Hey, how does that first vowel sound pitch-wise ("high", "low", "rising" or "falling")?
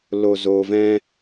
low